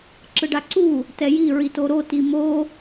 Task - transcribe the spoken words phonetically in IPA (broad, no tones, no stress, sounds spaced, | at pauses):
ǁ ɯ ɖ a ǀ u | t ɛ j i ɹ i t o ɾ o t i m o